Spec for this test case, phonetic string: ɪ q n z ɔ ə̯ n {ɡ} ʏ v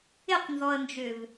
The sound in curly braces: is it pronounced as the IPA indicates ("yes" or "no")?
no